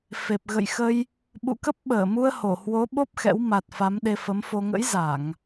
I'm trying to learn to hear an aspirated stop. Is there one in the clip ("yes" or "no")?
no